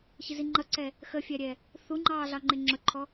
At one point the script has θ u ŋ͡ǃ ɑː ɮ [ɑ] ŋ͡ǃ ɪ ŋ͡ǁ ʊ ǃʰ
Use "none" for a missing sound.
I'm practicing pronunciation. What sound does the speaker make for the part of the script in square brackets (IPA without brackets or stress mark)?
ɑ